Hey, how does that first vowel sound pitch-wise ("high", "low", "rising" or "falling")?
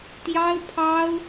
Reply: high